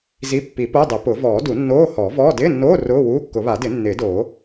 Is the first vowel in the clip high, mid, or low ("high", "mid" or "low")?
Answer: high